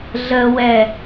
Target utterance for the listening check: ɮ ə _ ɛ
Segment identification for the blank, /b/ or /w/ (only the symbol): w